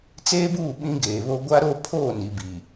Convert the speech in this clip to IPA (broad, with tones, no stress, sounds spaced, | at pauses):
t͡s eː˦ b uː˦˨ ɓ ĩ˦ ɡ eː˨ β o˦ ɡʷ a˦ ɾ o˦ pʰ oː˦˨ n i˨ b i˨